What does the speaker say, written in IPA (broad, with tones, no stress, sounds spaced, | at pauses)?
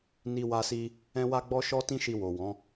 n i˦ w a˦ s i˦ | ɛ̃˦ w a˦ ɡ͡b ɔ˦ ʃ ɔ˦ t ĩ˦ ʃ i˧ w o˨ w ɔ̃˨˦